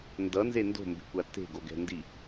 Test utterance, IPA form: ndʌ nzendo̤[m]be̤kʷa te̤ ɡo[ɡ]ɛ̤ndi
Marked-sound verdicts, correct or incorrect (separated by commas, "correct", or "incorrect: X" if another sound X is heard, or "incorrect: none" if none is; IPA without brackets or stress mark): correct, correct